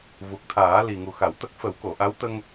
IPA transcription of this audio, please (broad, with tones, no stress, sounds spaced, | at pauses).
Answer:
v u˨˩ k̚ t̪ʰ aː˨˩˦ l i˨˩ ŋ u˨˩ x a˨˩˨ w t̪ ə˦˥ k̚ f ə˨˩˦ w k o˨˩˨ ʔ a˧˥ w t̪ ə˧ ŋ